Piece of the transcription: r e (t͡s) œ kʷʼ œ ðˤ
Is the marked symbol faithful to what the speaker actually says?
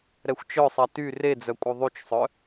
no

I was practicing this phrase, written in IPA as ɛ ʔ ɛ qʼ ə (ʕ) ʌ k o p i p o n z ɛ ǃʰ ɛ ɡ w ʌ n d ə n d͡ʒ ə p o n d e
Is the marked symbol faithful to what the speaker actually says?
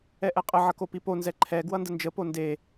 yes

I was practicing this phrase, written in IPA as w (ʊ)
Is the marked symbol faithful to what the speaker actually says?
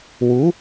no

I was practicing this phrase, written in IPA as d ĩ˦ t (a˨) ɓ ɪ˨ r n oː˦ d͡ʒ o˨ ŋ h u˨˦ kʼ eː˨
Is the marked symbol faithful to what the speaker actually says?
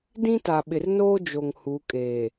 yes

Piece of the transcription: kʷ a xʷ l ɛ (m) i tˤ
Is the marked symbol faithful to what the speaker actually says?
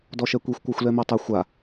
yes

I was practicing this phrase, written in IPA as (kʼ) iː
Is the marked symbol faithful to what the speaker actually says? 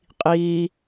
no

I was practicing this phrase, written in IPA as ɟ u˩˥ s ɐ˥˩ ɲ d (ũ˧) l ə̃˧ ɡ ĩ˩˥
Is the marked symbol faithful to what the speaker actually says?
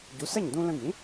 yes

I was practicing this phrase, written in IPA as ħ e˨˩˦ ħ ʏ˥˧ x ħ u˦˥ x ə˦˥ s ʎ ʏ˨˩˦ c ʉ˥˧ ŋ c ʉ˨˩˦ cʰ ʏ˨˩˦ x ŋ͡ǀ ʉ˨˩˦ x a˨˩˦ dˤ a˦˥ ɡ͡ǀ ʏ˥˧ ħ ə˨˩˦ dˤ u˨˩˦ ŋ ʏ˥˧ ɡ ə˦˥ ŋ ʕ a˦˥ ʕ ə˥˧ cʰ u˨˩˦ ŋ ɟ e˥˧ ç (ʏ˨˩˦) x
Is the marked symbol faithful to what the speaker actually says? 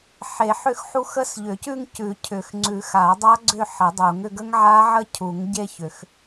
yes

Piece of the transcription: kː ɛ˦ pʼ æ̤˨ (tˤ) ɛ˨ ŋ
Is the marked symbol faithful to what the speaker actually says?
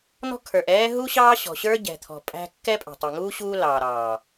yes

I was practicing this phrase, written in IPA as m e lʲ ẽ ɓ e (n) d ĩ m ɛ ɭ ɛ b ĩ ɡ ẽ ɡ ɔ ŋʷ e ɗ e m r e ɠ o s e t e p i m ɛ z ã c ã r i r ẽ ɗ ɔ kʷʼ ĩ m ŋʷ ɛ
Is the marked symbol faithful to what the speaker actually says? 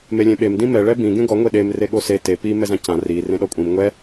no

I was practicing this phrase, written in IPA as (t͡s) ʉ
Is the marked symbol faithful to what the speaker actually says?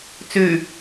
yes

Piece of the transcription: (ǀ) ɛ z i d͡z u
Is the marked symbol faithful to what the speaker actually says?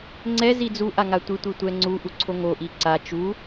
no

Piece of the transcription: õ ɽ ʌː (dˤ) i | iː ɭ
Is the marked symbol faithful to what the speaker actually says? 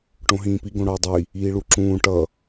yes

